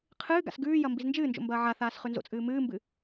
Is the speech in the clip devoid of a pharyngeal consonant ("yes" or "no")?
no